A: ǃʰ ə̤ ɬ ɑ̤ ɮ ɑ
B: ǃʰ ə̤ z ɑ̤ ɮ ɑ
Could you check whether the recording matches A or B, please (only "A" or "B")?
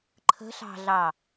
A